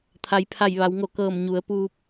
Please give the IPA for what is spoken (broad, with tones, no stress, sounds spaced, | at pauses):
t̪ʰ a˩˧ j pʰ a˧˩ j ʋ a˩˧ w ŋ o˧˩ k ɤː˧˩ m ɲ u˩˧ ə̯ p uː˧ p̚